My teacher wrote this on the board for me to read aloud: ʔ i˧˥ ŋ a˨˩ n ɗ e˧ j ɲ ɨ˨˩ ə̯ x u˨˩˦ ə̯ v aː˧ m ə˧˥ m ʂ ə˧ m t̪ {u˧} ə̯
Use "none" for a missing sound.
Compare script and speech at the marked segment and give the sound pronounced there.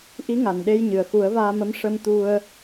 u˧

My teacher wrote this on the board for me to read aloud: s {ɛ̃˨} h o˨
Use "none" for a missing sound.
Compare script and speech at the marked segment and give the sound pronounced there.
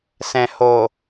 ɛ̃˨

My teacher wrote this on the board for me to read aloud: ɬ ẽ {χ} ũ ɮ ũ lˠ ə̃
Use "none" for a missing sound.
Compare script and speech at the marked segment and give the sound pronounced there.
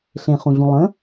χ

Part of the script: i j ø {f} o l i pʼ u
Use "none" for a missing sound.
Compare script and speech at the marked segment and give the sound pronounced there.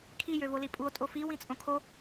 v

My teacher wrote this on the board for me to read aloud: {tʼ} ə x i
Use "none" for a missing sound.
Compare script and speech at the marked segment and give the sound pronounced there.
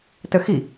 t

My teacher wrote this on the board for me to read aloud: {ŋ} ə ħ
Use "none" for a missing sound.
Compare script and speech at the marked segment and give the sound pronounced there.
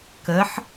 k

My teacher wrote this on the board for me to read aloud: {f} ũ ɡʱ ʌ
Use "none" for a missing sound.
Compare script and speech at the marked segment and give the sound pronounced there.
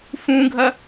f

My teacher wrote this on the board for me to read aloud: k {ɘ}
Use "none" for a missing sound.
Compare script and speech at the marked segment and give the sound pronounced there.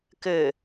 ɘ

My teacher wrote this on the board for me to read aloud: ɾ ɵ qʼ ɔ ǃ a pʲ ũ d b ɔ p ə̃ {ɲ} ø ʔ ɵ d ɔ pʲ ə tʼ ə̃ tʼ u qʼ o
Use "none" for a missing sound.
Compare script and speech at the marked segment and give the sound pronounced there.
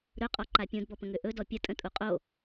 ŋ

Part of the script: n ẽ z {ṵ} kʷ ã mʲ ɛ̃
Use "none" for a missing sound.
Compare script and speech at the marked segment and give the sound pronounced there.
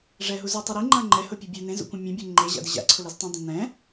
ṵ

